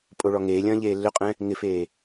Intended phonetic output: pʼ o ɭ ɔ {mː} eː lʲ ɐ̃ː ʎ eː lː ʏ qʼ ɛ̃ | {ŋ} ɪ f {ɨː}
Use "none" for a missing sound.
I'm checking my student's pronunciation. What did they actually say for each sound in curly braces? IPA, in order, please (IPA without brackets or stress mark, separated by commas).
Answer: ŋ, ŋ, eː